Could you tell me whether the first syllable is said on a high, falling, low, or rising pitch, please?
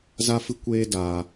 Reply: high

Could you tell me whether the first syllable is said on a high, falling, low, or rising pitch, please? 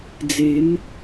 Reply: rising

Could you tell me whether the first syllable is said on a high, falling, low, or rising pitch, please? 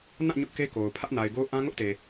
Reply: falling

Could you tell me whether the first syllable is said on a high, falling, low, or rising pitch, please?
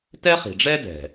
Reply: high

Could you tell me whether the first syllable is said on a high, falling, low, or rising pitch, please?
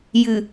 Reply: low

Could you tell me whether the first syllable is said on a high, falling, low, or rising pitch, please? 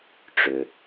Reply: low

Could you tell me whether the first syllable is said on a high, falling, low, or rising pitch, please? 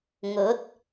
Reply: rising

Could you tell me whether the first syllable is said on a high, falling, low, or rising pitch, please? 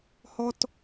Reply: high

